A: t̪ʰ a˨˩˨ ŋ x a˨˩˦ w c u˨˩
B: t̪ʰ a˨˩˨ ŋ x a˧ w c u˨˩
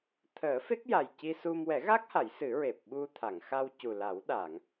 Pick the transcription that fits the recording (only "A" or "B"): B